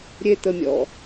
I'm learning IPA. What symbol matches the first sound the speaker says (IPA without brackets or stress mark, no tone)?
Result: ɾʲ